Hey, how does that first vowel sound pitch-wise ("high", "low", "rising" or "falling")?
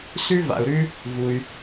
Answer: high